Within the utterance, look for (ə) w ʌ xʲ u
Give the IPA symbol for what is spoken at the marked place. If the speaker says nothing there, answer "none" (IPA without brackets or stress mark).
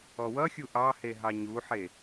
ɔ